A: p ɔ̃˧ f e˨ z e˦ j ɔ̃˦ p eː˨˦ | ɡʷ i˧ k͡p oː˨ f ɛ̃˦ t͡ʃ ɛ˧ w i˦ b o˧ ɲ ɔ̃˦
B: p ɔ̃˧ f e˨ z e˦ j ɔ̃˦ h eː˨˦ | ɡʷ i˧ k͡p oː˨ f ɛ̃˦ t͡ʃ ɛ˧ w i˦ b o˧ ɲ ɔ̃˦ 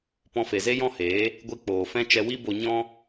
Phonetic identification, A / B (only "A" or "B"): B